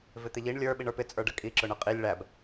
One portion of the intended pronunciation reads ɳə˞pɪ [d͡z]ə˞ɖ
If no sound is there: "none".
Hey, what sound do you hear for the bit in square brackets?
t͡sʼ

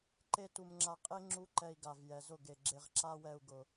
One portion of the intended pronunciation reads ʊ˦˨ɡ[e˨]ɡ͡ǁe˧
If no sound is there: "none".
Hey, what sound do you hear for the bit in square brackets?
e˨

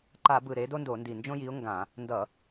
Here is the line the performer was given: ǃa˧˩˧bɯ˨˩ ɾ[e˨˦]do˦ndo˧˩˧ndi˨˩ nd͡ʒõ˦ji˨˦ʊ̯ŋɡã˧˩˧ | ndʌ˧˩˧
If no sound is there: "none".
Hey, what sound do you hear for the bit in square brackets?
e˨˦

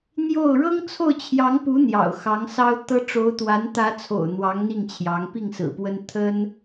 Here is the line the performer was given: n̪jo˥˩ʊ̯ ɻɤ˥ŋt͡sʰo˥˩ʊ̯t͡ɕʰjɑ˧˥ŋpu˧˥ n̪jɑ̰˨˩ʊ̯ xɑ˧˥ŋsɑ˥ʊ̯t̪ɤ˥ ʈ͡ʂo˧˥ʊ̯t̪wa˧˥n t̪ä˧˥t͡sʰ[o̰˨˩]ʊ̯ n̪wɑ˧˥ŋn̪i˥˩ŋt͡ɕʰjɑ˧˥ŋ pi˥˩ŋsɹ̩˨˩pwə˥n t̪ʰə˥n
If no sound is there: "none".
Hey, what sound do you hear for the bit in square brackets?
o̰˨˩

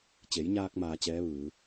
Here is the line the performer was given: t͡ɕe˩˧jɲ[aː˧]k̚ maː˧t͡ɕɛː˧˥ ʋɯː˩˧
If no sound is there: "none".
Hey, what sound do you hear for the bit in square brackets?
aː˧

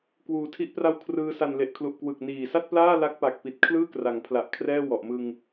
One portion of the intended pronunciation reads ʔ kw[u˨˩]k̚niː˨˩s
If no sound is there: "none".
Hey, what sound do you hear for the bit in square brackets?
ɯ˨˩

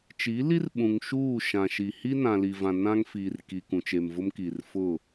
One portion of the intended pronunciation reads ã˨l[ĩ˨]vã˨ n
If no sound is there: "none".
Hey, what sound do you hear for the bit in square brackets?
i˨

